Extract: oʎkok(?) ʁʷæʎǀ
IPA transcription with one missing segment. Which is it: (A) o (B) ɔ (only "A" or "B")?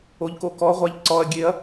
B